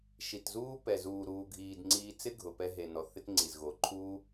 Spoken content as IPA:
ʃi˨tzuː˦pɛ˨ zuː˨ɾuː˨ɡʱiː˨dŋ͡ǀiː˧ t͡sɪ˦ɡʱʊ˨ pɛ˧ɦe˨nɔ˨ θɪ˦tŋ͡ǀi˨zɣo˨˦ ǃʰuː˦

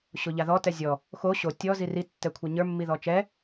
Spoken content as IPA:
ɕoʎaðɔ tɛzʲɔ | xo ɕo tʲɔ ziri tːɛkʷʰaɲə˞ mːiðɔt͡ʃɛ

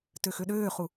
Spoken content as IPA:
tøxøɗøːχu

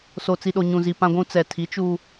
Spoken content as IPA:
so˨t͡si˨ɗo˨ ɲũ˨zi˨ pã˨ɡʷũ˨ t͡sɛ˨tʰi˨˦ t͡ʃuː˦

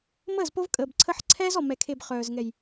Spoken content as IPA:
məː˦˨zpo˦v kʼəː˨bǀʰə˦ħ ǀʰɛː˦zɔ˨ mɛ˨kʰe˨b χœː˨zŋɛ˨j

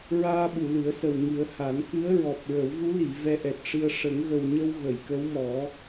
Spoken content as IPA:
ɹaː˧ɓu˨˩˨lɨ˨˩˦ə̯sə˨˩w ŋɨ˨˩˦ə̯ ha˨˩˦nkɨ˧˥ə̯ɹɔ˨˩p̚ ɹə˨˩˦wvu˧˥li˨˩˨ vɛ˧ʔɛ˨˩t̚ʂɨ˧ə̯ ʂə˨˩˦ŋɣə˨˩wɲə˧w ɣə˨˩˨jkə˧˥wmɔ˨˩˦

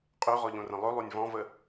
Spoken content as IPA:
qʼøʁɔʎõrə̃ lˠɵlˠonʲ vɔ̃və

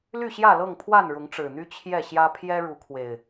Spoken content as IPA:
ly˥˨ɕjä˥˨lɤ˥˨ŋpʰwa˥˨n ɻʊ˨˦ŋʈ͡ʂɻ̩˨˩n̪y˦ t͡ɕʰjɛ˥˨ɕjä˦ pʰjɛ˦ɻu˨˦kʰwe˨˩ɪ̯

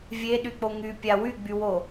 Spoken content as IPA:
vʲeɗyk͡po ŋypʲa wyɡ͡bywo

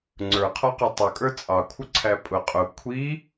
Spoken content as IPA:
ŋ͡ǀə˞qʰɔqɪ tˤəkʼə˞ t͡sʼɑkʷʰʌǀʰæ pʼʊ qʼʊ kʷʰi

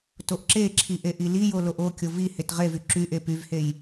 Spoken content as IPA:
toʔǁeǁʰi ʔeʔilijo loʔokʲo vi hetʁevy ǁyʔe pyvhej

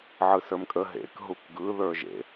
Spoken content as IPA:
ʕɯsə˞mkʼə ɦḛk ɦukɡɯ ðə˞ʒḛ

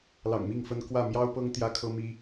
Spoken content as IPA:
lɑ̰˨˩ŋmi˥˨ŋfə˦n kwä˥˨ mjɑ˦ʊ̯pɤ˦ŋ t̪jä˦kʰɤ˦mi˦

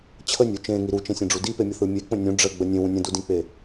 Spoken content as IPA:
t͡ɕʰənʲu t͡ʃẽŋi ɾut͡ʃẽsʲẽɖ͡ʐu dipemʲʌθɯ mʲek͡pə̃ nʲũ ɖ͡ʐəɡ͡bə nʲẽwũ nʲə̃dudĩk͡pe

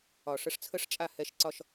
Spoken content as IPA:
ɒ˨ ʂə˧ʂt͡sʰə˦ʂt͡ʃʼa˦ hɛ˧ʃǀɒ˦ʃ

